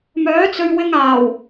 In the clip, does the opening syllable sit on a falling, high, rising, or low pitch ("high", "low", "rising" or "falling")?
rising